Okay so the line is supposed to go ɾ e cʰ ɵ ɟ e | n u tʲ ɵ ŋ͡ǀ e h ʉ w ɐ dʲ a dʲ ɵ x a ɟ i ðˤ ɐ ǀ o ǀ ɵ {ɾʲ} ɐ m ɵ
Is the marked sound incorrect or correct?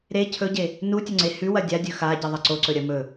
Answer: correct